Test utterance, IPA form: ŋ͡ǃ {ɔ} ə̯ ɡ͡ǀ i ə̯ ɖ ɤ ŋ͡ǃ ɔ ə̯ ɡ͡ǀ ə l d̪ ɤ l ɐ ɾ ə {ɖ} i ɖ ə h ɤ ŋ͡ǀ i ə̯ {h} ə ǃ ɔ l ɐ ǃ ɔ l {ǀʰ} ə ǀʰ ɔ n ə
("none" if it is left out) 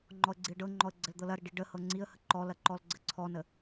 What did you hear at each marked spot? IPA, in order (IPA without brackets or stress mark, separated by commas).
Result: ɔ, ɖ, h, ɡ͡ǀ